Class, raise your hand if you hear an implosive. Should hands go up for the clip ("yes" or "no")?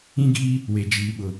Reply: yes